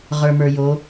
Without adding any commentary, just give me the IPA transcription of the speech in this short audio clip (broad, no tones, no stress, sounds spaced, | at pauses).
ʁ ə˞ m ə˞ j o